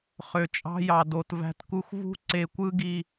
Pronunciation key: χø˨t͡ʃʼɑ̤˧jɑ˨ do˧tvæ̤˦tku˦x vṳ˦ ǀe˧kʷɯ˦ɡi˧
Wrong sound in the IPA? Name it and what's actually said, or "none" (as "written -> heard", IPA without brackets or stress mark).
none